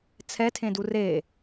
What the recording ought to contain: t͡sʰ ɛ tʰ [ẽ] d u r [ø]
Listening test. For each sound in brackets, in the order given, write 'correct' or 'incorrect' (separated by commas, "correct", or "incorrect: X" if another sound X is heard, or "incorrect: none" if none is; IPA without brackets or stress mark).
correct, incorrect: e